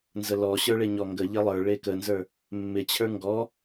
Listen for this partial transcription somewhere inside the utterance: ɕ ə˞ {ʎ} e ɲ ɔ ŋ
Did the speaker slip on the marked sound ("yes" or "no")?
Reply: yes